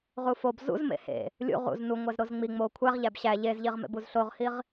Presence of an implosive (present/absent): absent